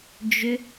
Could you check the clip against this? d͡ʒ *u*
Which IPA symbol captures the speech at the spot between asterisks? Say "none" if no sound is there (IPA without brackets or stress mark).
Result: ʏ